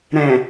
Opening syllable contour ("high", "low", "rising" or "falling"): low